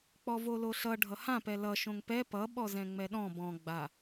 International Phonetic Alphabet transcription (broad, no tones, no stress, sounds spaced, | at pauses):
k͡p ɔ v o l o ɬ ʌ ɖʱ ʌ h ã p ɛ l ʌ ʃ õ ŋ p ɛ p ʌ ɓ ɔ z ɛ̃ ŋ͡m ɛ ɗ ɔ̃ b ɔ̃ ɡ͡b a